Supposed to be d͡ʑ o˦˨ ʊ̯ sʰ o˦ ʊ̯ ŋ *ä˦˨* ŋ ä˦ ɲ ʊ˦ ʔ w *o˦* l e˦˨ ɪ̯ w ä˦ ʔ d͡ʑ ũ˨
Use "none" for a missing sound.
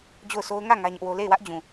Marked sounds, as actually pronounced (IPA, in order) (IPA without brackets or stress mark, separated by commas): ä˦˨, o˦